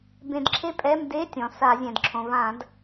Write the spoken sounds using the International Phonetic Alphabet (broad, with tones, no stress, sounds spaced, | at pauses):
b ẽ˧˩˧ d ǁʰ e˥ pʼ ɛ˧˥˧ m d e˧˥˧ tʲ ɔ̃˩ s a˧˩˧ zʲ ɛ̃˩ d ǁʰ õ˩ v ã˧˩˧ d